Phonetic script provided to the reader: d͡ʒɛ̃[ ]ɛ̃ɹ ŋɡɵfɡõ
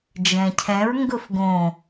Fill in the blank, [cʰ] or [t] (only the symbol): cʰ